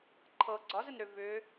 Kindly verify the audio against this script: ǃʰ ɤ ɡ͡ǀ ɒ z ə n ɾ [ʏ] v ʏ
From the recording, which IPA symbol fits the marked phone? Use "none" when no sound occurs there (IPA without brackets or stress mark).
ʏ